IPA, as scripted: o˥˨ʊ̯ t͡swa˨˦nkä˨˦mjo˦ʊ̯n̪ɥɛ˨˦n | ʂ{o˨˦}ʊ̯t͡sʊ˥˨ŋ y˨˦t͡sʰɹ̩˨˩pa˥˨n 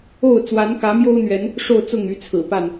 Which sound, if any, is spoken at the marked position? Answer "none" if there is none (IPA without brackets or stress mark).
o˥˨